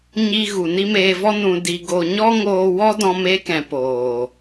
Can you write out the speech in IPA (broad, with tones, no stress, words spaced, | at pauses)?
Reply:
ɲi˧ ɣu˨ni˦meː˧vɔ˦ nũ˨ di˨ɡo˨ ɲɔ˦ ŋoː˧wɔ˦ dɔ̃˧meː˧kɛ̃˨ poː˨